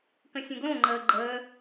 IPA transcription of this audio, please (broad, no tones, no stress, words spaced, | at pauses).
kə̃sʲə̃ɡlõ ŋ͡ǃəːɡ͡ǃəː